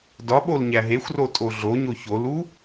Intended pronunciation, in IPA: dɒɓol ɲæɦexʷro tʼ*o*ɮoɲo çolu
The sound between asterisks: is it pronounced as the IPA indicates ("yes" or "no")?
yes